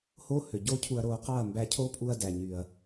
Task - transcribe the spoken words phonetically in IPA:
h oː˦ h ø˨ ɟ oː˦ cʰ u˧ ɐ̯ ɾ oː˧ q ɑ˦˨ ɐ̯ m b æ˧ cʰ oː˦ pʼ u˧ ɐ̯ d æ˨ ɲ y˨ ɐ̯

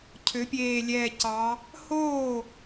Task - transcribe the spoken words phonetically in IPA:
cʰ ø˩˧ pʲ eː˨˩ lʲ ɛː˨˩ c ɑ˩˧ | h oː˥˩

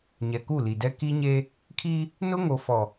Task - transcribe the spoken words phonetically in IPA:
ɲ ɛ˨ k u˦˨ l i˨ d ɛ˦ k i˦ ɲ e˦ | kʰ i˦ | n ʊ˦ ŋ o˨ f ɔ˨

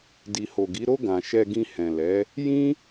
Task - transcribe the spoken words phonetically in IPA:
d i˨ h o˨ ɡ i˨˦ ɾ o˧ ɡ ã˨ ʃ ɛ˧ ɡ ĩ˧ h ɛ̃˨ l ɛ˨˦ | j ĩ˦

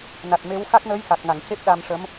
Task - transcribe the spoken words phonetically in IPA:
n a˨˩ t̚ m e˧˥ w x a˦˥ k̚ n əː˧˥ j x a˨˩ k̚ ŋ a˨˩˨ ŋ c e˦˥ p̚ ɗ a˧ m ʂ ə˧˥ m

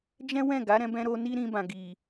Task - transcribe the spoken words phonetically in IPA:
d͡ʒ ɛ̃˦ w ɛ̃˦˨ ɡ a˨˦ ɾ ɛ̃˧ b ɛ̃˧ ɾ o˧ n i˦ ɾ ĩ˧ b ã˨ ɡ i˨

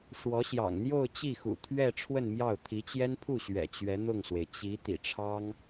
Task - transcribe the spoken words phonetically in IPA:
ʂ w ɔ˧˥ ɕ j ɑ̰˨˩ ŋ n̪ j o˥˧ ʊ̯ t͡ɕ i˥˩ x ṵ˨˩ t̪ʰ ɥ ɛ˥˧ ʈ͡ʂʰ w ə˥˧ n m j ɑ˥˩ ʊ̯ t̪ʰ i˧˥ t͡ɕ j ɛ˥ n pʰ u˥˩ ɕ ɥ ɛ̰˨˩ t͡ɕ ɥ ɛ˧˥ n̪ ʊ˥˩ ŋ s w e˩ ɪ̯ t͡ɕ i˧˥ t̪ ḭ˨˩ ʈ͡ʂʰ ɑ˥ ŋ

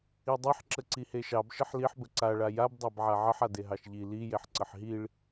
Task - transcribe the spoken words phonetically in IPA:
i dˤ i ħ ǁ ə ǀ i h e ʃ ɑ b ʃ ə ħ l i ħ b ə ǀ a ɭ a j a b dˤ a b ʕ a ʕ ə ħ a d e ɦ ɑ ʃ ʎ i l i j e ħ ǀ ə ħ ɦ i ɭ

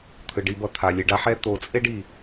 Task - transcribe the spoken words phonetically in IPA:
t̪ʰ ɯ˩ ɖ i˨ b ʌ˨ t̪ʰ a˩ lʲ e˨ ɖ a˥ ħ ɛ˦ t̪ o˨ t͡sʼ e˥ ɖ i˩

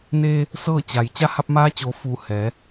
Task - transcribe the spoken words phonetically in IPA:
n eː˧ | s ɤː˥˨ t͡ɕ a˩ j t͡ɕ a˧˥ h a˧ p̚ m aː˧˥ t͡ɕ oː˩˧ f u˧˩ h ɛː˩˧

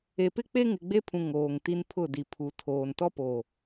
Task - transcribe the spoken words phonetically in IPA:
e˨ p ɪ˦ k͡p e˦ ŋ ɪ˨ ɡ͡b e˦ pʰ ũ˨ ŋ oː˨ ŋ t i˦ n pʰ ʊ˦˨ d i˨ pʰ u˨ tʰ oː˨ n t ɔ˦ p oː˨

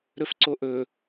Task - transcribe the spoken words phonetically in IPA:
ɾ ɵ f ǀ o ʔ ɵ

